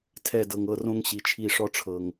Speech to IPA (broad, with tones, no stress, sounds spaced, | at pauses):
tʰ ɛ˦˨ d ɤ˨ ŋ ɤ˦˨ r õ˦ ŋ ɕ i˨ t͡ʃʰ i˦˨ ʂ ɔ˦ ʈ͡ʂʰ ɤ˨ ŋ